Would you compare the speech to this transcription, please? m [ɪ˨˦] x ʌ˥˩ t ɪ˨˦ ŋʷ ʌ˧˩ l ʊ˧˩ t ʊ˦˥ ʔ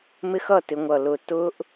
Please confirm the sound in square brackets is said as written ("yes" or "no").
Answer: no